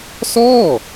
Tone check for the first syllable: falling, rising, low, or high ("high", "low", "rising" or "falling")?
falling